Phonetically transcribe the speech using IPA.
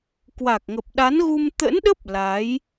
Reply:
kwa˨˩k̚ŋə˨˩p̚ɗa˨˦nɣu˧m t̪ə̰˧˥nɗə˦˥p̚ la˨˦j

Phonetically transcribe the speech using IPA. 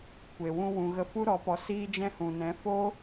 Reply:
kʷe˨wũ˧ wũ˨ɣə˧fu˦ ɾɔ˨˦pɔ˧ siː˧d͡ʒɛ̃˧hũ˨nɛ̃˨˦ fo˦

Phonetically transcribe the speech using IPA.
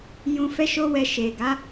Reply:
jũ˧fɛ˦ʃo˦wɛ˧ ʃe˨ɡa˨˦

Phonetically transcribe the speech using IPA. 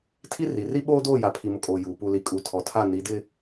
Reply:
tʰi˦ri˨ ri˦ɓoː˦doː˦˨ ja˨pʰi˨mʊ˨kʼoː˨ juː˨ pu˨li˨kʼu˨ tʰɔ˨tʰa˦˨ ni˨˦dɪ˦

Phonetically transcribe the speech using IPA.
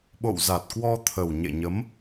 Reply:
ɓo̰˧˨wza˨˩t̚kwɔ˧ t̪ʰə˨˩wɲḛ˧˨ɲə˨˦m

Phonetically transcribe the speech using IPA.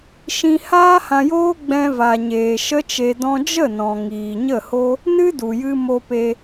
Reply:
ʃĩ˧haː˦hã˧joː˦ ɡ͡bɛ̃˧va˨ɲeː˨ ʃə˧t͡ʃe˨dɔ̃˧ d͡ʒə˦˨nɔ̃˨ ŋiː˨ɲə˦˨ho˦ | nɨ˦du˨jɨ˧ mo˧pe˧

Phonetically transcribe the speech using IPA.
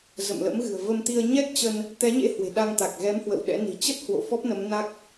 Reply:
zə̰˧˨mlə̰˧˥mɣɨ̤˨˩ə̯ və˧mt̪i˧ə̯ ɲɛ˦˥k̚t͡ɕə˧n | t̪ɛ˨˦ɲḛ˧˥ hwe̤˨˩ ɗa˧ŋt̪a˨˩k̚ ɣɛ˨˦m hwə̰˧˨wɗɛ̰˧˥ni̤˨˩ t͡ɕə˦˥t̚hwo̰˧˨ fɔ˦˥p̚nə˨˦mna˦˥k̚

